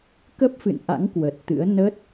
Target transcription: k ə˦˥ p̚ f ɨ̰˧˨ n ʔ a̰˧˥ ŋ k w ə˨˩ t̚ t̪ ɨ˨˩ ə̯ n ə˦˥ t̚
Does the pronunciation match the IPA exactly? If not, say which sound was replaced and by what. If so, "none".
ɨ˨˩ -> ɨ̰˧˥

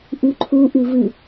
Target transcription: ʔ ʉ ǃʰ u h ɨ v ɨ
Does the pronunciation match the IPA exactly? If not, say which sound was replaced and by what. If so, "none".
h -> ʔ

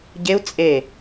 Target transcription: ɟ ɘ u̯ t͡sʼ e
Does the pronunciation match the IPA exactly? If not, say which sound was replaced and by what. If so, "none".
ɘ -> e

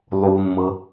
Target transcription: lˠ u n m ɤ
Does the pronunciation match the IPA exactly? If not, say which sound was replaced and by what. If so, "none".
none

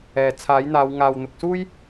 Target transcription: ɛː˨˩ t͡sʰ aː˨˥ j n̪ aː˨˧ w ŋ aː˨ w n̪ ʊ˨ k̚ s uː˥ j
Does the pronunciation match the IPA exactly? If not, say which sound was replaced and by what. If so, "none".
none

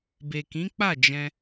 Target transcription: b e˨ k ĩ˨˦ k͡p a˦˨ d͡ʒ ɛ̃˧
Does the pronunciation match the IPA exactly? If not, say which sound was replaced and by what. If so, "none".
none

